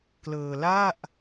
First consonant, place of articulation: velar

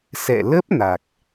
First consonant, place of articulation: alveolar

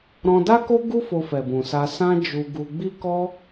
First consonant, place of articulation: alveolar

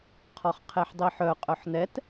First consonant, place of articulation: uvular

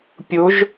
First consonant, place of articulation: labial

